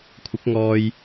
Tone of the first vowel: rising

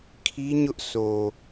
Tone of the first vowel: high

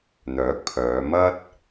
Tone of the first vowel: rising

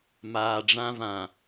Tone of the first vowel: low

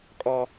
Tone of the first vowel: high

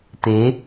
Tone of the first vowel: rising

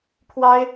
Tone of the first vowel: high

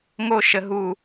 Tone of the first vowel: high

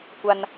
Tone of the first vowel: high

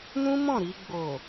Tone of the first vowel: high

